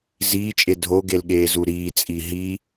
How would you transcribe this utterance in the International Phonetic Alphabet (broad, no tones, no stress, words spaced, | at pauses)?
ziːt͡ʃʼe dʱoɡel ɠeːzuɾiːt͡sʼi ɦi